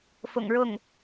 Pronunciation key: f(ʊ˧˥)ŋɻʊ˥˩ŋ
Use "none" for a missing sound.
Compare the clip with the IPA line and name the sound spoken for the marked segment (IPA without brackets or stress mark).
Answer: ʊ̰˨˩